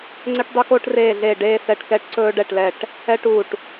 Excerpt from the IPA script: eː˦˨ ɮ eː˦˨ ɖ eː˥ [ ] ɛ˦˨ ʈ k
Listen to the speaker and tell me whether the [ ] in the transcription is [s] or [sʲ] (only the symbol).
s